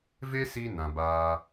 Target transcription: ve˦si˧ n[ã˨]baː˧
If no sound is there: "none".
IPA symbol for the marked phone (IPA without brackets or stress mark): ã˨